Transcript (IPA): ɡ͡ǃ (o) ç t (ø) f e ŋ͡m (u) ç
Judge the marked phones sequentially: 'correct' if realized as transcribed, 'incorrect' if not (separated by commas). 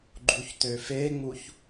incorrect, correct, correct